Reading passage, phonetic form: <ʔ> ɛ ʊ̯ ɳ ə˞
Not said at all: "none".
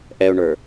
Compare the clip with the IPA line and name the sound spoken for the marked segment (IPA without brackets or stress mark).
ʔ